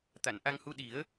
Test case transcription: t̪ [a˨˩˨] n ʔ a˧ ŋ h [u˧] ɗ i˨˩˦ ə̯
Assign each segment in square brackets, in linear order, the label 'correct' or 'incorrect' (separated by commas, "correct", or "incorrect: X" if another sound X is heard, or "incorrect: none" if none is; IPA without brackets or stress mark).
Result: correct, correct